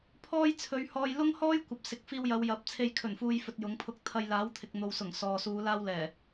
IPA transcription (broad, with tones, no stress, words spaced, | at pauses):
pʰɔː˥jt͡sʰɵ˨˧ɥhɔː˧j lʊ˥ŋhɔː˥jkʷɐ˨p̚ sɪ˨˥k̚fiː˧wjɐ˨˧w jɐ˨˥p̚t͡sʰe˧j kʰɵ˨˩nfuː˨jfɵ˨t̚ jʊ˨˥ŋ pʰʊ˧k̚t̪ʰɐ˧j laː˨˥wt̪ʰɪ˨k̚n̪o˨wsʊ˨˩ŋ sɔː˨suː˨˧ laː˥wlɛː˨˩